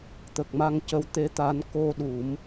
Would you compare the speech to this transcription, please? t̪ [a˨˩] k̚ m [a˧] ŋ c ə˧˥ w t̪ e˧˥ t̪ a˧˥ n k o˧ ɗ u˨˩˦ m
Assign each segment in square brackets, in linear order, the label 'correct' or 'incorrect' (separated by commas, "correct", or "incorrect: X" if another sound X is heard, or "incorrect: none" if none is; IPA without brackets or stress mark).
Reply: incorrect: ə˨˩, correct